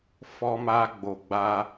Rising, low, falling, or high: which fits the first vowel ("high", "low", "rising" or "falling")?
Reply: high